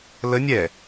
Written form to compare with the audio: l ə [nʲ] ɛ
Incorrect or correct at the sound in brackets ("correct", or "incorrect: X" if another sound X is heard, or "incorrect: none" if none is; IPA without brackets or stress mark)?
correct